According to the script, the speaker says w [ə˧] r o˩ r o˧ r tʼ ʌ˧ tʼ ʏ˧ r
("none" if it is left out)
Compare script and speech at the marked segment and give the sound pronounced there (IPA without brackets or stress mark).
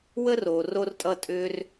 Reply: ə˧